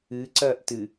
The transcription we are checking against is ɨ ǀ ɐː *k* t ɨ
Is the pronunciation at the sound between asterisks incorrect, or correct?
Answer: incorrect: ʔ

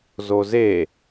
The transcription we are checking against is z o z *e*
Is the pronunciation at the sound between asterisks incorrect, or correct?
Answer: correct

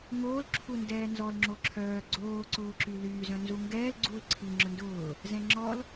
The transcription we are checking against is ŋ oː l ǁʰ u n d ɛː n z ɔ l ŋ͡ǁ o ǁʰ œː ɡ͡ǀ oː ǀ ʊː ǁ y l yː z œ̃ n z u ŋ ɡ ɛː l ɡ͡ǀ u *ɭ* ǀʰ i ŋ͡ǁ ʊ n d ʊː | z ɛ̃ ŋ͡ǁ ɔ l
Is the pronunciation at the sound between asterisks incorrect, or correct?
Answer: incorrect: l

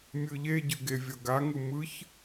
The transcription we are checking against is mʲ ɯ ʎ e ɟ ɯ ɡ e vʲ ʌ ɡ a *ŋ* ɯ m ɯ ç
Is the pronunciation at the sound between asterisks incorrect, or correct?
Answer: correct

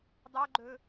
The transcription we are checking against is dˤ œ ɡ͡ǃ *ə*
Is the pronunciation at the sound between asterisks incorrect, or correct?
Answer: incorrect: ɵ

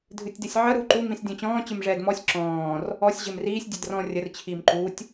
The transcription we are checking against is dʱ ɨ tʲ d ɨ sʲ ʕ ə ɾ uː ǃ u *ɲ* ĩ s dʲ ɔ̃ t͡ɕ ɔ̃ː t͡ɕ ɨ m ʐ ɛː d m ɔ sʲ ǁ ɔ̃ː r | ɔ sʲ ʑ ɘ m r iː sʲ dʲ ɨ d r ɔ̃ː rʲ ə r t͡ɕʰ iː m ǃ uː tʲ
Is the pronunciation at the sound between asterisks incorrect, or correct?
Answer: incorrect: m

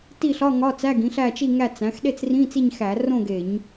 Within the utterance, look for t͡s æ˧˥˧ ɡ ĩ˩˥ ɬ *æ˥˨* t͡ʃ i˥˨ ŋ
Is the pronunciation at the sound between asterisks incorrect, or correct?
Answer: correct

